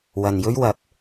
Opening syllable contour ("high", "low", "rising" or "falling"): low